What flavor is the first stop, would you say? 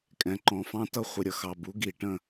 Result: ejective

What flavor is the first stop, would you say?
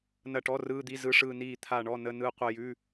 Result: plain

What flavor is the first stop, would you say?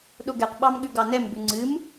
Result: implosive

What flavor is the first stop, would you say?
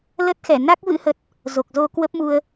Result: plain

